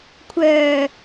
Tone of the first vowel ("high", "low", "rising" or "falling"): low